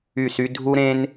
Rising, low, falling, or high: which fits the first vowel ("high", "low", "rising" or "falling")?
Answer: falling